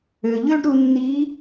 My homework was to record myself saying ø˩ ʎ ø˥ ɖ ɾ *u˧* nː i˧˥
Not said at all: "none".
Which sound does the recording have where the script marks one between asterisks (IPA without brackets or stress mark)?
u˧